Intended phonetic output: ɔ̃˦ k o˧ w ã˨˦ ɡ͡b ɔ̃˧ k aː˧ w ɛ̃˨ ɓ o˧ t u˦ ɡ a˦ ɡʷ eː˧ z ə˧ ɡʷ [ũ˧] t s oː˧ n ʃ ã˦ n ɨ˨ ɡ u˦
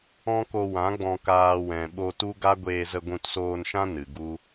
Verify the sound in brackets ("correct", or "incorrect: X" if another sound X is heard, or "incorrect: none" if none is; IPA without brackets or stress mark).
correct